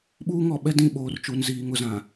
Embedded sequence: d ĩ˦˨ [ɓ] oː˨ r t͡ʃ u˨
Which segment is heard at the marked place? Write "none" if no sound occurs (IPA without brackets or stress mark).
ɓ